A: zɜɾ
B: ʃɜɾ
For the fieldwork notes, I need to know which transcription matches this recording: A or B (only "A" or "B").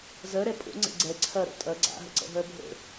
A